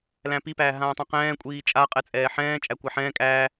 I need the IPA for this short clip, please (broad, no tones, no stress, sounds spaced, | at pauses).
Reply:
l æ̃ p i p æː ɦ ãː tˤ ɛ̃ q ɛ̃ː kʷʼ iː t͡ʃʼ a qʼ ɛ t͡sʼ ɛː ħ ɛ̃ː t͡ʃʼ æ kʷ a ħ ɛ̃ː kʼ æː